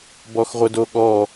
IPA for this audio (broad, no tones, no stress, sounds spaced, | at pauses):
b ɔ x ʁʷ ə d o ɠ ɔ